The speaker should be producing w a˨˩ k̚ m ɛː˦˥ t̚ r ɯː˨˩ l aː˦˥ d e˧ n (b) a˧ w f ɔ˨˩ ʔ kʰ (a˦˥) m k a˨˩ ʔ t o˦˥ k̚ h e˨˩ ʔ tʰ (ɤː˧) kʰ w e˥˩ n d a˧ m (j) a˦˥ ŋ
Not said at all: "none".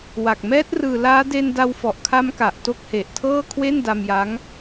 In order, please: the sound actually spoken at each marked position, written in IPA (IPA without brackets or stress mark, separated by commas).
d, a˦˥, ɤː˥˩, j